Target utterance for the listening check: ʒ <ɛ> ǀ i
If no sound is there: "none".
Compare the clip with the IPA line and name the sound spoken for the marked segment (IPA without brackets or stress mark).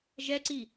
ɛ